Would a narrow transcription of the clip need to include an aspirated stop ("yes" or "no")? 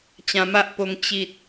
no